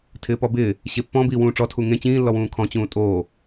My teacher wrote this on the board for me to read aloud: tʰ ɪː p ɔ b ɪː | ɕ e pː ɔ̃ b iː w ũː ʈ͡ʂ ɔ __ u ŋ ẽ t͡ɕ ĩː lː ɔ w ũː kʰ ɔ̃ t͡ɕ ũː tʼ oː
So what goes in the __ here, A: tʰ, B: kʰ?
A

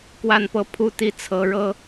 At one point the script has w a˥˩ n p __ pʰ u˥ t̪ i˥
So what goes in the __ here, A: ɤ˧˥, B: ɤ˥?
B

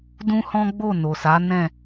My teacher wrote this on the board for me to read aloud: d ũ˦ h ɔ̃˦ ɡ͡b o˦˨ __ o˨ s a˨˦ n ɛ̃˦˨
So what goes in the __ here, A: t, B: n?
B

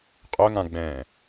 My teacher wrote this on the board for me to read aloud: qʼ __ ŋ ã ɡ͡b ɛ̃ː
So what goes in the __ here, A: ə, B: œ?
B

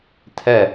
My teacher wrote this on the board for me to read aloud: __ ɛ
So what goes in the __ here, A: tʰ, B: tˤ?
A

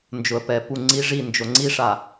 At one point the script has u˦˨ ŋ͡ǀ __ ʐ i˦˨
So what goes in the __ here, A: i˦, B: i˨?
A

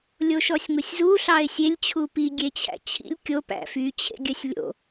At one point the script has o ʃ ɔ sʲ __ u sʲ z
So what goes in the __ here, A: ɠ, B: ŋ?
B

